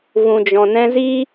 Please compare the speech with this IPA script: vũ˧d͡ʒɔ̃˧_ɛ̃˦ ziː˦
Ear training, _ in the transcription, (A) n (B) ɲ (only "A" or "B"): A